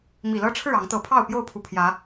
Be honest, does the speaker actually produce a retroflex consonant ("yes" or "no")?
yes